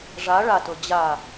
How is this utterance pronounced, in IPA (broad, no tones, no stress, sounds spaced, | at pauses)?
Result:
ʐ a ɭ a t ɤ d͡ʑ a